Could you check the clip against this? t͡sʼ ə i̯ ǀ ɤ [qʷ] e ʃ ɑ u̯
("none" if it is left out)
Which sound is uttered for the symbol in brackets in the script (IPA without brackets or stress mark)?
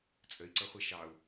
χʷ